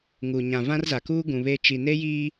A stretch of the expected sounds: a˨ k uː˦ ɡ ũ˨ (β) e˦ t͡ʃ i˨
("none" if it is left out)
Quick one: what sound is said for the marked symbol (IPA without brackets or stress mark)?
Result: β